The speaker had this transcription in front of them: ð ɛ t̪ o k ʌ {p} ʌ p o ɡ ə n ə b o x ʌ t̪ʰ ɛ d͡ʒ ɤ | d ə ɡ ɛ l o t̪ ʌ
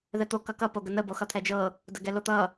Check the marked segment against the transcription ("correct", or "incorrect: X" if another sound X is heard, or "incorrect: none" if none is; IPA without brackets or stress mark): incorrect: k